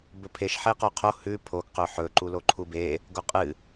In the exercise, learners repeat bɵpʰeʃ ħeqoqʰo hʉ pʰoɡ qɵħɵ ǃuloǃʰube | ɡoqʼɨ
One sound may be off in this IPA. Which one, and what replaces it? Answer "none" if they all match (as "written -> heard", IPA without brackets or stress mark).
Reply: none